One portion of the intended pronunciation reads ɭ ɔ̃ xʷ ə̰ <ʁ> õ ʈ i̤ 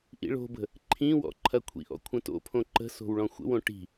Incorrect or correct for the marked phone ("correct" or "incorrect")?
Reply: incorrect